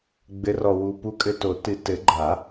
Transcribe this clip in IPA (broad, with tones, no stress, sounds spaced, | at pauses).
ɡ͡b ɘ˨˥ r ɔ˨ w u˨ p u˨˥ kʼ ɘ˨ t o˨˩˦ t ɨ˨ t ɘ˨˩˦ ɡ͡ǃ a˨˩˦